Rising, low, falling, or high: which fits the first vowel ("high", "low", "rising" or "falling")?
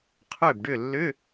falling